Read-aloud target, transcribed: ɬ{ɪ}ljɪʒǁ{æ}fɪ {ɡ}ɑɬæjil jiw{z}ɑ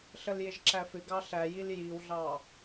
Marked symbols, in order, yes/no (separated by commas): no, yes, yes, no